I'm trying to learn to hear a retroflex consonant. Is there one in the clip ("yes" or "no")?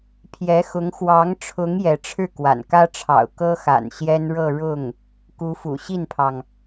yes